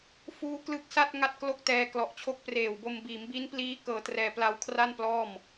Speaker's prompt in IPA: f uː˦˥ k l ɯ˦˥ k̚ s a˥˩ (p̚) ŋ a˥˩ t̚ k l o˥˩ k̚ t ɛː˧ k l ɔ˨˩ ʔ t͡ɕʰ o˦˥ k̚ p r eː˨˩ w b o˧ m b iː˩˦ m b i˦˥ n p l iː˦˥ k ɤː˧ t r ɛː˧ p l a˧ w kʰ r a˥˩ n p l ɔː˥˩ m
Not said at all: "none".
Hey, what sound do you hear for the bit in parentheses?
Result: t̚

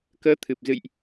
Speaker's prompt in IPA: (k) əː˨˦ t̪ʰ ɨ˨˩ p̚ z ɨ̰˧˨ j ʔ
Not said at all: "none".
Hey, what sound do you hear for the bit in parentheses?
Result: k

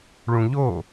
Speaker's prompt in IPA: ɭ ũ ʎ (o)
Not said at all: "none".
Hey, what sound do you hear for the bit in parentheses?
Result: o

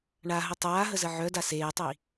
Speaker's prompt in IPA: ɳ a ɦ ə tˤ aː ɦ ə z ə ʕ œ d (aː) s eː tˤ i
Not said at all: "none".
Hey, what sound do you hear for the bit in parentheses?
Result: a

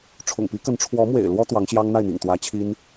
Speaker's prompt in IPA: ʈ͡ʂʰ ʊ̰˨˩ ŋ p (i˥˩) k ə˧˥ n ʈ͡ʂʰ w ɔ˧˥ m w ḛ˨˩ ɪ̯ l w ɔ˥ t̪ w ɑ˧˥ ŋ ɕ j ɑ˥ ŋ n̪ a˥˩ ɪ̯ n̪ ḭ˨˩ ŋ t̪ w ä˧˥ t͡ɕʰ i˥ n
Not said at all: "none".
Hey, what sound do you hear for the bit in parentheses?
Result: i˧˥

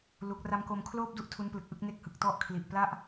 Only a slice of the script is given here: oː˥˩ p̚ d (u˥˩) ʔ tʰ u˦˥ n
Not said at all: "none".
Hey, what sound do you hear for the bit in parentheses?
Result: u˥˩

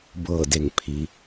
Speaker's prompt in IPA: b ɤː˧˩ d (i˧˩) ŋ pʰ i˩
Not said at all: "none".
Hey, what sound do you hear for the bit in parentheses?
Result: e˧˩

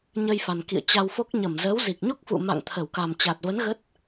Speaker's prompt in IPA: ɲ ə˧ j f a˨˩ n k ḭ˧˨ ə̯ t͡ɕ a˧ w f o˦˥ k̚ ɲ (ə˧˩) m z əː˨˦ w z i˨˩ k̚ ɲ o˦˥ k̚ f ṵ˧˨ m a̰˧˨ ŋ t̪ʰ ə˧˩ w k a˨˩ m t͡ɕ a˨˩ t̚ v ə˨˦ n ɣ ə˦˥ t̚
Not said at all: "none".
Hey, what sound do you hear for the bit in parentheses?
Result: ə˧˩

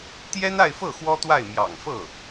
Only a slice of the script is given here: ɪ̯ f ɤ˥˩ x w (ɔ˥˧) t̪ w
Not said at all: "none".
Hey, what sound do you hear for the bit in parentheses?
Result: ɔ˥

